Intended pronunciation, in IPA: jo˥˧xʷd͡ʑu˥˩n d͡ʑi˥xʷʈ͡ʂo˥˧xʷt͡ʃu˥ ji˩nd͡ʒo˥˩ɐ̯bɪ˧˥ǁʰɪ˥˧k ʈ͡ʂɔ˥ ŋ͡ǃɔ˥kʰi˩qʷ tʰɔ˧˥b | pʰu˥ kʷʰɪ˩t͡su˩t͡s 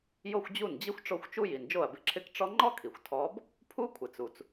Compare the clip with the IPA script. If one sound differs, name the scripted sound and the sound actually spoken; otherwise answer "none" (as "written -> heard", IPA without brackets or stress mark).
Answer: qʷ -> xʷ